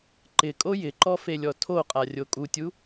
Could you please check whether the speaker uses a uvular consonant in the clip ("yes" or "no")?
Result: yes